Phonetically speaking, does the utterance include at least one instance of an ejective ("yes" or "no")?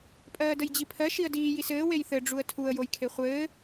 yes